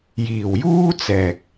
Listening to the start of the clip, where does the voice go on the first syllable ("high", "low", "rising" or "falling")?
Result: low